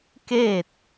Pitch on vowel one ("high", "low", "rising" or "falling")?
falling